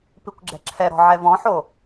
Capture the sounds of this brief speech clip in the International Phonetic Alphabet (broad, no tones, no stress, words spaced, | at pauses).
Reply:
pikʷɡ͡ǁɛ̤ǁʰɛɾɔ̤ ʕɛvɔ̃ħo